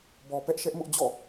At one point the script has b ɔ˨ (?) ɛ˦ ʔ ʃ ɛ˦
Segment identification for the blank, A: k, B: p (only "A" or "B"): B